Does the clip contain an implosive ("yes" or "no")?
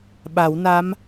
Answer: yes